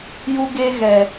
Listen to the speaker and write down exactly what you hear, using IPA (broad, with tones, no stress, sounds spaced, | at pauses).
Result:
j u˦ ɡ e˦ ɣ ɛ˨